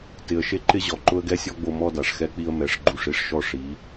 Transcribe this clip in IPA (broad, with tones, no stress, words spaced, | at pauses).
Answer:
tɪ˨ə̯ʃe˦ǃɪ˦ʑɔ˨ ǃʊ˦ə̯ɡɛ˦sʲɔ˦ɡ͡bo˧ mɔ˦da˨ʂxɛ˦k͡pi˦ə̯ mɛ˨˦ʂɡ͡ǃu˦˨ʂ i˧ʂʃɔ˦ ʂi˨˦